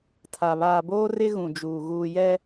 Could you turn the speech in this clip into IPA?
tʰ a˨ β aː˨ b oː˦ r ɪ˦ ɣ ũ˨ d͡ʒ uː˨ ɣ uː˨ j ɛ˦

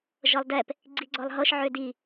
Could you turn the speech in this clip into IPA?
ʒ ɤ lˠ d ɛ p | ɡ͡ǀ i ɡ͡ǀ ɔ lˠ ɦ ɤ ʃ ʕ ø d i

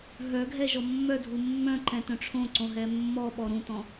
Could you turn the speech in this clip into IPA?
ɦ œ ɡʱ ɛ ʒ ɔ mː œ dʱ u mː œ̃ ǃ ɛ̃ t œ̃ ʈ͡ʂʰ õ ǀ õ ɦ ɛ mː ɔ ɓ ɔ ɾ ũ t ɔ̃

